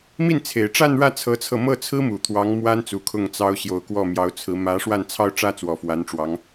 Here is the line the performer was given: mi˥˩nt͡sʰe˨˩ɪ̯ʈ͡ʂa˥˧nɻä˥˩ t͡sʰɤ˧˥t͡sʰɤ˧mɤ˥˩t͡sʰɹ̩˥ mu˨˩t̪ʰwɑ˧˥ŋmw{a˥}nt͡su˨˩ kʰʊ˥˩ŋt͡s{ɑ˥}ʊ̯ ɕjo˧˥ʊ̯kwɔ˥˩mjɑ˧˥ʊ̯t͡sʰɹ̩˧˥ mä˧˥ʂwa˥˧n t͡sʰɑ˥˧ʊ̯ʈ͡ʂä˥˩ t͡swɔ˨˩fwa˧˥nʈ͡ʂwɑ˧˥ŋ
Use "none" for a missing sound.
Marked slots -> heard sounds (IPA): a˥, ɑ˥

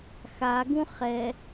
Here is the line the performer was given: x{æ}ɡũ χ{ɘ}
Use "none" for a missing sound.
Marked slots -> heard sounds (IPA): a, ɛ

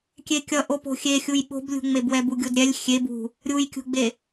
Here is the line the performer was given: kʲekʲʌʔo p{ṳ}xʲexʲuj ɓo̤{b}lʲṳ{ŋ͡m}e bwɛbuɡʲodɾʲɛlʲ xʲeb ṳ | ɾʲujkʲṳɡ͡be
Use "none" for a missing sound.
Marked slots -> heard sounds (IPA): o̤, b, ŋ͡m

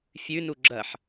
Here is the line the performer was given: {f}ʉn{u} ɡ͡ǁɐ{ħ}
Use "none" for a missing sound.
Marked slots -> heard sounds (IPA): fʲ, u, ħ

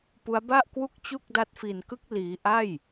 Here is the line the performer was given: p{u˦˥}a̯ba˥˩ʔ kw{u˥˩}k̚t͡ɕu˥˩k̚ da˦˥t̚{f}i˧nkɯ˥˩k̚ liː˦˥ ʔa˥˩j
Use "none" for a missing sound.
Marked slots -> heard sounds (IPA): u˦˥, u˥˩, f

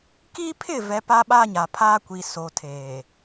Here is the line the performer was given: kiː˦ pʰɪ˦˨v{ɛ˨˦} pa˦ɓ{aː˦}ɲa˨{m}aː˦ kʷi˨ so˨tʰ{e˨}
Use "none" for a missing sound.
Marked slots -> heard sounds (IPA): ɛ˨, aː˦, pʰ, eː˨

